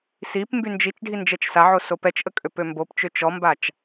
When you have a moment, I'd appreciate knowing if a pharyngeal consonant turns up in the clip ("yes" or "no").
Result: yes